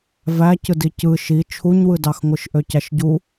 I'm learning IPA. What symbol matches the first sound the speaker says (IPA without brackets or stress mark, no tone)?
v